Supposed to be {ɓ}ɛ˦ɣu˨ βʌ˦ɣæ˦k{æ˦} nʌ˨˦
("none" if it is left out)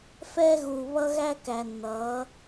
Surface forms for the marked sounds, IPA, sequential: f, æ˨

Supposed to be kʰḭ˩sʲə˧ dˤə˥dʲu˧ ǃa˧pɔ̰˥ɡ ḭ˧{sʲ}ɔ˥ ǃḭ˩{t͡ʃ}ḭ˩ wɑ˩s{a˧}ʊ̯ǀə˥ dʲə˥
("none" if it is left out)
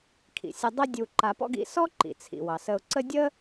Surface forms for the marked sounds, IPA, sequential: s, t͡sʰ, ə˧

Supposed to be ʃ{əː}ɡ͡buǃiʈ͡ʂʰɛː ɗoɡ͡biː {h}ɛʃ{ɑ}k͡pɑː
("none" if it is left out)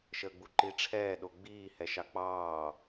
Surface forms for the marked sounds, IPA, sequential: əː, h, ɑ

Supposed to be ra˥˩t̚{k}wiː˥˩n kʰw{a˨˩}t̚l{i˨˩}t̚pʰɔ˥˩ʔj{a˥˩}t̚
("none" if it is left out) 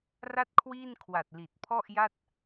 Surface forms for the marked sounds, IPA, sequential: kʰ, a˨˩, i˨˩, a˥˩

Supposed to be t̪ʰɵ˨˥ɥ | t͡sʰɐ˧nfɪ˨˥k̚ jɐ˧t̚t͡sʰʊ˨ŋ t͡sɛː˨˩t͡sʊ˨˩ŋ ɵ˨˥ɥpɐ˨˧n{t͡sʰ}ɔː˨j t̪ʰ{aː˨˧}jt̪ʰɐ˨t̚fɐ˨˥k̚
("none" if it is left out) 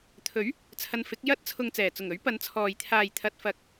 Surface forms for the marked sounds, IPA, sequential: t͡sʰ, aː˨

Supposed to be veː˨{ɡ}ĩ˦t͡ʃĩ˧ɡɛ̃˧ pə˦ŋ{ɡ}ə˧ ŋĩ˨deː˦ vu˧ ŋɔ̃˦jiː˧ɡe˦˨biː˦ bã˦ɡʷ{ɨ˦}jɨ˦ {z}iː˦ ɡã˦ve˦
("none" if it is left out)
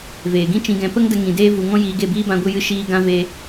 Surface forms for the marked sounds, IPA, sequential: ɡ, d, ɨ˦, ʃ

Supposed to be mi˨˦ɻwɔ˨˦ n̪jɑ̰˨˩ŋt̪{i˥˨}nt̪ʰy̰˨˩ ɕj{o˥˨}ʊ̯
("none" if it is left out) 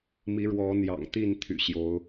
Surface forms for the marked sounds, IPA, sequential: i˥˨, o˨˦

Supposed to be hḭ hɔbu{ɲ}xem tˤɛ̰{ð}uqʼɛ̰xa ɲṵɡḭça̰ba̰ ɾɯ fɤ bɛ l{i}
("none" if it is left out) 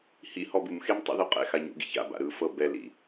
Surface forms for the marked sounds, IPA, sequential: m, ð, ḭ

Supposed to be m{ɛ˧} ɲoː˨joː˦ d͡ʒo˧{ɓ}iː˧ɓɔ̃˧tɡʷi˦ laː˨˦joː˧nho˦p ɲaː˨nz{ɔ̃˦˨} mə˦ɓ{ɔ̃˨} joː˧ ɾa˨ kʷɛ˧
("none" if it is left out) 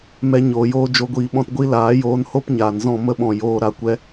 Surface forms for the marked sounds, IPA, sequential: ɛ˧, ɡʷ, ɔ̃˦˨, ɔ̃˨

